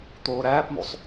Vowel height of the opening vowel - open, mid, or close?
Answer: mid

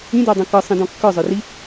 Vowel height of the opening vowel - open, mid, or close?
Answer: close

